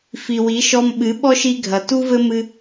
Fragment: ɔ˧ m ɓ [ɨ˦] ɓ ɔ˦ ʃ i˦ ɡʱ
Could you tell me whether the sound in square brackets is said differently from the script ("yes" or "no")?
yes